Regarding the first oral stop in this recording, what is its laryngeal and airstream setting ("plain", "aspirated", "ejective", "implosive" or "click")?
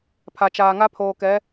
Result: aspirated